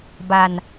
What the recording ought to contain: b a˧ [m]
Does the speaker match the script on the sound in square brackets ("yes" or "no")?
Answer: no